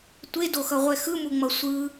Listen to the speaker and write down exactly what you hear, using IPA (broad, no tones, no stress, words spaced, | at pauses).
tʷedoxʌʁʷɛ xɯmuŋ͡mʌ sʷɯ